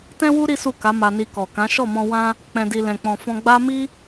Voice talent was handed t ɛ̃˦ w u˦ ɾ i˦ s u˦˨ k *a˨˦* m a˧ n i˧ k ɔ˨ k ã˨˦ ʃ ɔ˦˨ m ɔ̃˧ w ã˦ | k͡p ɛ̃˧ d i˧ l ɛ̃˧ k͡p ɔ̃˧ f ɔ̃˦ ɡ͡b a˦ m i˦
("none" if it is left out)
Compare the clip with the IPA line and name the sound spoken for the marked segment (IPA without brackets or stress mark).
a˨˦